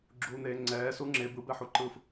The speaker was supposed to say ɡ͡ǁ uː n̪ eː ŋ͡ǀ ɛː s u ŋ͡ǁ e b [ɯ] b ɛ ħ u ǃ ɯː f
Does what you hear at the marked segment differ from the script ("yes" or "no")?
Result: no